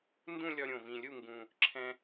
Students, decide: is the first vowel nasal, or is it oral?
nasal